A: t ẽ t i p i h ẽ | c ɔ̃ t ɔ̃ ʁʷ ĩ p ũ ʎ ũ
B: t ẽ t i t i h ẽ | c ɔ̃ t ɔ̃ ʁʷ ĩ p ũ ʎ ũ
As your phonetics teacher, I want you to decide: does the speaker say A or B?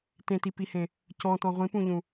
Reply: A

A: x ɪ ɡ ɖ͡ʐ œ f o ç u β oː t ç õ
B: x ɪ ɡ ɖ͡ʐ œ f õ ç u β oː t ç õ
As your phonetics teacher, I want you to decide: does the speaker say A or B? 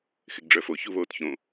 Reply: A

